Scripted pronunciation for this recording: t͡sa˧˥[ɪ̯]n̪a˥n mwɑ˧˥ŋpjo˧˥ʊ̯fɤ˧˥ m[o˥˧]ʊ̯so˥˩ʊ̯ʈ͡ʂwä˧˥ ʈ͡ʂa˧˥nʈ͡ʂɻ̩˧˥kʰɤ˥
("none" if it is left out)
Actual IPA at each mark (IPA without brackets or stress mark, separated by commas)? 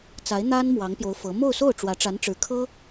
ɪ̯, o˥˧